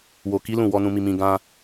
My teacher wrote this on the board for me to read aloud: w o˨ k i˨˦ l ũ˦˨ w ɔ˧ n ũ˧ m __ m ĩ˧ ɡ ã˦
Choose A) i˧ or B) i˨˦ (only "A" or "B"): A